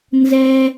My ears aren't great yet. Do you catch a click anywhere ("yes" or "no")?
no